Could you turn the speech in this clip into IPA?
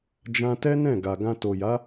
d͡ʒ ã˧ t ɛ˦ n ɛ̃˦˨ ɡ a˨ ɡ ã˧ t o˨ j a˨˦

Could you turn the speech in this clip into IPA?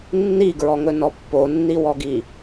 nː i ɡ ɹ ɔ ŋ ɵ n ɔ pː o nː i w ɔ ɡ i

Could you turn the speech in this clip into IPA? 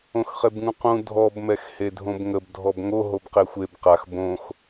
õ x χ e b ŋ ũ q ũ dʱ ɔ b m ɛ x h e dʱ õ b ŋ ə b dʱ ɔ b ŋ o ɦ o b q e xʷ e b q a x b õ x

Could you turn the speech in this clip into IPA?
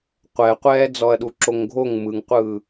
qʷ ɛ qʷ ɛː d͡z ɔ ɐ̯ ɗ u ǁ o ŋ ɡʱ o ŋ m ɯ ŋ qʷ ɯː

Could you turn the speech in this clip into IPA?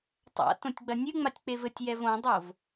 tˤ a̰ t õ tʲ ɡ͡b ɐ nʲ ɨ ŋ͡m a tʲ k͡p e v ɘ tʲ j ɛ v õ dˤ o v

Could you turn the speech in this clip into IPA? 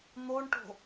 n̪ o ɳ ʈ o̤

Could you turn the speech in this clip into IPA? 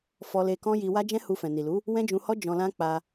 f ɔ˧ l e˧ k ɔ̃˦ j i˧ w a˦ d͡ʒ ɛ̃˦ h u˧ f ɛ̃˨ n i˨ l u˨˦ | w ɛ̃˦ d͡ʒ ũ˧ h ɔ˦ d͡ʒ ɔ̃˧ l ã˦ k͡p a˧

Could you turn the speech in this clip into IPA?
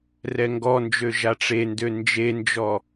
r ɛ ŋ ɡ ɔ n d͡ʒ ø ʒ a ʈ͡ʂ e n d ø n d͡ʒ e n d͡ʒ ɔ

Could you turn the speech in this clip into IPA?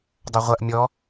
dˤ ɐ ʁʷ ɐ ʔ mʲ ɔ

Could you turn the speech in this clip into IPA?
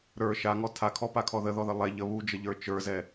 ɾ ə˞ ʃ a ŋ ɔ tʰ a kʰ ɔ p a kʰ ɔ ð ə ð ɔ ð ə lˠ ɛ ʎ ə β u d͡ʒ ə ʎ ə˞ t͡ʃ ə˞ z ɛ

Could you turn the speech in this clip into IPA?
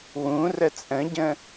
w ũ r ə t͡sʼ ə̃ ɟ ə̃

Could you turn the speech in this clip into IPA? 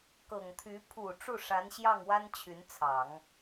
k ɤ˨˩ ŋ t̪ʰ y˧˥ pʰ u˨˩ ʈ͡ʂ u˥˩ ʂ a˧˥ n ɕ j ɑ˥˩ ŋ w a˥ n t͡ɕʰ y˧˥ n t͡sʰ ɑ˨˩˦ ŋ

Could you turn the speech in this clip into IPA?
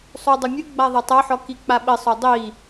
sˤ u dˤ u mʲ ɨ ɡ͡b a ðˤ e tˤ ɐ ħ ɔ k i k͡p a ɓ ɘ sˤ o dˤ i

